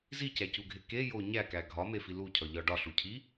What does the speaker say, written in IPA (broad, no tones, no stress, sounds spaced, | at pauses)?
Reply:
z i c æ c u ɡʱ e k e j o ɲ æ k æ ɡʱ ɒ m e f i l u cʰ ɒ ʎ ɒ ɖ ɒ ɬ u cʰ i